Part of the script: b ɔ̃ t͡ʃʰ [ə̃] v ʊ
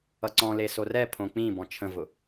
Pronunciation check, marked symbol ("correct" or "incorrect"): correct